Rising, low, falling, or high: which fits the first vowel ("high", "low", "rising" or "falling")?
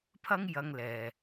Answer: high